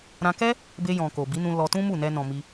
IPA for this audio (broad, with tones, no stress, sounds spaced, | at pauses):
ɾ ã˧ k ɛ˦ | b e˧ j ɔ̃˨ k o˨ b i˨˦ n ũ˧ l ɔ˧ t ũ˦ m u˦˨ n ɛ˧ n ɔ̃˨ m i˧